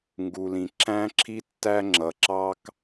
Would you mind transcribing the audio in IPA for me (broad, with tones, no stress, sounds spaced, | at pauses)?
ŋ ɡ u˩ l ĩ˩ ǁ æ̃˥ ǁʰ i˥ tː æ˥ ŋ͡ǁ ʌ˩ ǁ ɑ˥ k